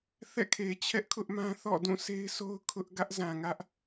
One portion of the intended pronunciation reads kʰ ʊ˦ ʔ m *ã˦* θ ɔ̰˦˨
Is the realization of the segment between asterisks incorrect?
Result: no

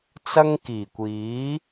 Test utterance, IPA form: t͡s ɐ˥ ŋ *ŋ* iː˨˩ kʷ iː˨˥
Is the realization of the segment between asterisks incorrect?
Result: yes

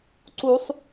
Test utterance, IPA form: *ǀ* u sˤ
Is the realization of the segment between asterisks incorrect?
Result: no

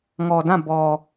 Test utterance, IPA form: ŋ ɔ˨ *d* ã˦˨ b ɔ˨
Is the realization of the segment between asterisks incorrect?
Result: no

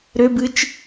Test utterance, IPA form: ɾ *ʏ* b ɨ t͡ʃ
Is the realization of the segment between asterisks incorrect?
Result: no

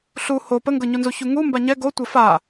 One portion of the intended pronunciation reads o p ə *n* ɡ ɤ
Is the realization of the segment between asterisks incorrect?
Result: yes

